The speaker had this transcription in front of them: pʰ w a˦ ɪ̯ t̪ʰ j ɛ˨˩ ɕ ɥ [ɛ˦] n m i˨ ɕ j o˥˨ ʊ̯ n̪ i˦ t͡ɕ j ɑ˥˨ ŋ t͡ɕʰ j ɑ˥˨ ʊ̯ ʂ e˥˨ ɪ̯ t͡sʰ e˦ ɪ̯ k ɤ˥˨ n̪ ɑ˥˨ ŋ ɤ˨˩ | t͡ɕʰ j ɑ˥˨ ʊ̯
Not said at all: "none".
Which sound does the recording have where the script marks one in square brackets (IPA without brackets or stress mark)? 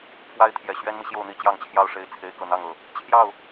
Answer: ɛ˦